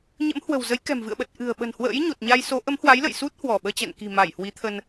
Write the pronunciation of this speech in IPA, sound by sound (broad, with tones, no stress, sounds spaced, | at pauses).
ɲ ə̰˧˥ m h w ə̤˨˩ w z ə˨˦ j k ɛ̤˨˩ m v ɨ̰˧˨ ə̯ ɓ ə˨˩ t̚ ʔ ɨ̤˨˩ ə̯ ɓ ə̤˨˩ n h w ə̰ː˧˥ j ɲ o˨˩ t̚ ɲ a˧ j s o˨˦ ʔ ə˨˦ m h w a˨˦ j l ə̰˧˨ j s u˦˥ t̚ h w ɔ˧˩ ɓ əː˧ t͡ɕ ɛ̰˧˨ n k i̤˨˩ m a˧˩ j h w i˨˦ t̪ʰ ə˧ n